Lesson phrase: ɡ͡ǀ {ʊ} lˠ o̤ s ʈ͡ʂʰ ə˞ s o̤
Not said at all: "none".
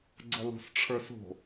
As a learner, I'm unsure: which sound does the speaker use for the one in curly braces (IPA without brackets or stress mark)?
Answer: ʊ